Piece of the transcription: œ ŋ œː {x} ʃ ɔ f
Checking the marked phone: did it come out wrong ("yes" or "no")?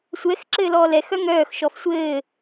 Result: no